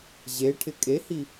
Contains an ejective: yes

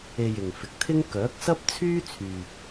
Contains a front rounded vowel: yes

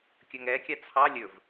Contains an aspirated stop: yes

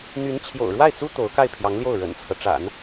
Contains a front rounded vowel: yes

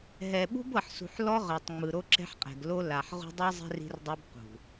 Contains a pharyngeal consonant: yes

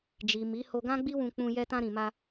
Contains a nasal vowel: yes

